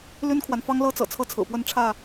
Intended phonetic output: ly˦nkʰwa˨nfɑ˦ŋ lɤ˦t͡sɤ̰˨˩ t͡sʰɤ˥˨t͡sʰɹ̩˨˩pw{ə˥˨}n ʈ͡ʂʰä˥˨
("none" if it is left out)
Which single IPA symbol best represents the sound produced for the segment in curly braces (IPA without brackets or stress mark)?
ə˥˨